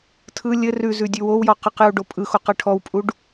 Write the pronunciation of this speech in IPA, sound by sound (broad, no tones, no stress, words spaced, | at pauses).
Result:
tʰɯ lʲɘ rʉzʉ dʲʉwowjɔ qəqju ɖopʼɯxo qɘʈʰɔwpʼuɖ